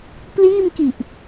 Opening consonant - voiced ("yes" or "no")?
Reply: no